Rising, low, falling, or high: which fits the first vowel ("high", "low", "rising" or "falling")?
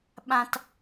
low